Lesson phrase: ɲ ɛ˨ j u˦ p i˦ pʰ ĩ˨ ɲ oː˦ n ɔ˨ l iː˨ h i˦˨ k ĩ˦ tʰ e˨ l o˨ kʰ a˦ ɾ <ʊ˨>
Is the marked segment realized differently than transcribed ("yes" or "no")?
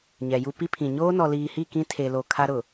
no